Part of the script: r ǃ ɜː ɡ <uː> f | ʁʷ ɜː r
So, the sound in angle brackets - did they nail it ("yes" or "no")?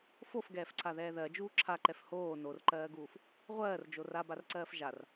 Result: yes